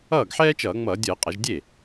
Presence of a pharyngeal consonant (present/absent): present